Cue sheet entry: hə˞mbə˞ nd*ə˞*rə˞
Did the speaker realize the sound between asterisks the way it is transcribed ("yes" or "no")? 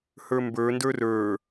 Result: yes